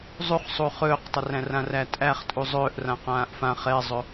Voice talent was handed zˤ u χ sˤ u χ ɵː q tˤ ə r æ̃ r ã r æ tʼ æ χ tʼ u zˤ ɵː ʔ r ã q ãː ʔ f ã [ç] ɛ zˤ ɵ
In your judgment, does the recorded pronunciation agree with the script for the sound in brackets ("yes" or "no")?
no